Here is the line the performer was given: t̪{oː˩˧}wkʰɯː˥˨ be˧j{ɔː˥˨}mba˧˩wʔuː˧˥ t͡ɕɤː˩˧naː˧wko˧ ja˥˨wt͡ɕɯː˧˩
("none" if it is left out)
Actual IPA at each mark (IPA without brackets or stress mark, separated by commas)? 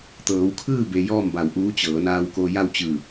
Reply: ɤː˩˧, ɔː˥˨